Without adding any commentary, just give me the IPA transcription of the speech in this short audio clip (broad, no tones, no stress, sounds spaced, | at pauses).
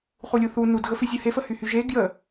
χ u lʲ u θ u n u d ɣ ə f i zʲ ə h e f ə h y h y ʒ e ɡ j ə